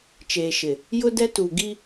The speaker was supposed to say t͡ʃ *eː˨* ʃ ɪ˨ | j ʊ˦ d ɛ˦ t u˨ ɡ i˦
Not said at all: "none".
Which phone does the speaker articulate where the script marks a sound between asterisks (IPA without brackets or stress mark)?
eː˨